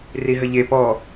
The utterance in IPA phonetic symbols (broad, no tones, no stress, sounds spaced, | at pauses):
r i ɦ ə ʎ e p ɔ